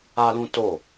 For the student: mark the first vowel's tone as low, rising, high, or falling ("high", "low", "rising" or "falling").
high